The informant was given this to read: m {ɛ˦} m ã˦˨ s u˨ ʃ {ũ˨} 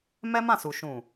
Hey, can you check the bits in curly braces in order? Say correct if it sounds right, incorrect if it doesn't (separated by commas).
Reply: correct, correct